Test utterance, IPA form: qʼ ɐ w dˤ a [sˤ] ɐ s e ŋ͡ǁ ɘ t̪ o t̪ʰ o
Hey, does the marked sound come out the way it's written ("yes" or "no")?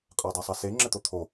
yes